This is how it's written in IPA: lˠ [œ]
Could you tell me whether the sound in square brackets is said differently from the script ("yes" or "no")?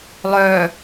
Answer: yes